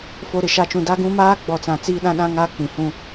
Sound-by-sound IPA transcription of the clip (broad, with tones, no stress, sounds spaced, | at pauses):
f o˨ ɾ ɪ˨ ʃ a˨ t͡ʃ ũ˨ d a˦ ɡ ũ˦ m aː˦ ɡ͡b ɔ˨ t͡s ã˨ t͡s iː˦ ɗ ã˦ ɗ ã˦ ŋ aː˦ k͡p ĩ˨ h ũ˦